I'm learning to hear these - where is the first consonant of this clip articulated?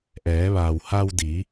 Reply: throat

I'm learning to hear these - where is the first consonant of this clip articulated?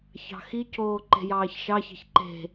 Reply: palate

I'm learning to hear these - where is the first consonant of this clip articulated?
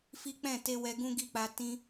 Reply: lips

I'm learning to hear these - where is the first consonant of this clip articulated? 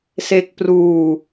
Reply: tongue tip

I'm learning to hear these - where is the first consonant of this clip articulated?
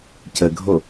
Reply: palate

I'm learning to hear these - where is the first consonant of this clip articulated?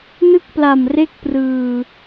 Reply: tongue tip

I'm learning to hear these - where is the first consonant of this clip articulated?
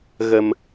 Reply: velum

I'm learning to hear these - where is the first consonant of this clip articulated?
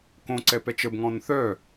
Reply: velum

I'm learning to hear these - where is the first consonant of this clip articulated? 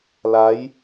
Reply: tongue tip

